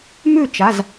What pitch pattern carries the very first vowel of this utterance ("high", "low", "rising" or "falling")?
falling